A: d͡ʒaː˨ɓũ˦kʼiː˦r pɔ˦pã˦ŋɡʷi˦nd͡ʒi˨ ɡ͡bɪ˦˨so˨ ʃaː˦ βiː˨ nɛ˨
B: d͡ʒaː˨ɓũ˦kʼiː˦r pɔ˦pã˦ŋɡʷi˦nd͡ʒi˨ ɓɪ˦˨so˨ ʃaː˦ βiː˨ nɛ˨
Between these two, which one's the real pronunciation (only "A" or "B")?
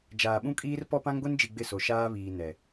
A